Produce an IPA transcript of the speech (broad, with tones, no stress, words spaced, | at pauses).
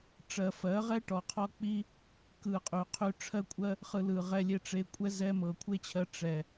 ʈ͡ʂɜ˨fɜ˨˦ʁɛ˦ ʈɔ˨qʰɔ˦k͡pi˦ | kɯ˧qʼy˨ qʰy˧ ʈ͡ʂʰɜ˦kʷʼɜ˦ | χɯ˧lɯ˨ʁɛ˧lʲe˦˨ ʈ͡ʂe˧kʷʼɛ˦ zɛ˧ mɤ˨kʷʰe˦t͡ɕʰɜ˧ ʈ͡ʂɛ˨